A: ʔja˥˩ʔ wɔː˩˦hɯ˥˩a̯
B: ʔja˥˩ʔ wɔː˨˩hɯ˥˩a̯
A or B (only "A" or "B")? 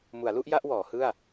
A